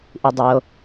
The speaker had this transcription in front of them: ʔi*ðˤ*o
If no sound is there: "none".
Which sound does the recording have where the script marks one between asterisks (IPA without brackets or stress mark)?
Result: dˤ